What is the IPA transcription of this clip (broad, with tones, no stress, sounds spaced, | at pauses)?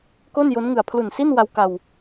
k o˥˩ n j o˦˥ n ŋ ɯ˨˩ a̯ pʰ l u˨˩ n s i˥˩ n w a˧ w k a˧ w